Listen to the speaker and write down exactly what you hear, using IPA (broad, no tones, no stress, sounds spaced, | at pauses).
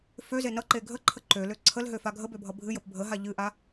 f ø z e n ʌ ǃ e ɡʱ ə ǃʰ ə ǃ ø l ø ǀʰ ə l ɦ ø f a ɡʱ ə b ø bʱ ʌ bʱ ɨ j ə p bʱ ə ɦ a ʎ ɨ ʔ a